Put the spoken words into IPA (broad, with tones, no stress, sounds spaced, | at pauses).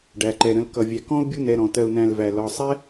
ɖ æ˩ ǃ ɛ˩ ɾ ə̃˨ l k ʌ˨ vʲ æ˨ k ɔ̃˥ u̯ bʲ u˦ n ɛ˨ ɾ ɔ̃˩ t ɜ˨ u̯ n æ̃˨ l v æ˩ l ɒ˨ sˤ ɛ˥